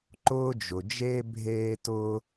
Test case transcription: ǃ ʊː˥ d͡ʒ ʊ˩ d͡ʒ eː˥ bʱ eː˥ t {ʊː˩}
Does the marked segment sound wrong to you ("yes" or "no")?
yes